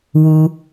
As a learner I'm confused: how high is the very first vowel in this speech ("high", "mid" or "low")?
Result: high